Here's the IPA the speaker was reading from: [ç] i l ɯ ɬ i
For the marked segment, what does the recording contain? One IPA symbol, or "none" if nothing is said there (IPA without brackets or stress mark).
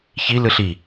ç